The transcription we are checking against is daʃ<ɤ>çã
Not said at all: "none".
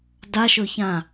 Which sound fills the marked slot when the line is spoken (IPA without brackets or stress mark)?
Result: ɵ